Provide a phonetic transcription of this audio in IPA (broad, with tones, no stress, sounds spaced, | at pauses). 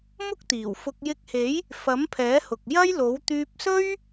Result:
m ʊ˥ k̚ t̪ iː˨˩ w f ʊ˧ k̚ j ɪ˧ k̚ h e˨˥ j | f ɐ˨˥ m pʰ ɛː˨˥ h ʊ˨ k̚ j ɐ˥ j l o˨˥ w t̪ yː˧ p̚ s ɵ˥ ɥ